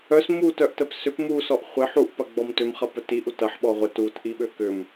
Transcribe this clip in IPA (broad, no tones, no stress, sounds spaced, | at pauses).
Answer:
œ s m u t œ ʔ t ə p s ʏ p m u s ɔ ʔ χʷ ɪ ħ u ʔ p ɐ ɡ͡b ɔ m t ʏ m χ ɐ p œ t i ʔ u t ɐ ħ ɓ ɔ ʁʷ ə t u t ʔ i ɓ ø k ʏ m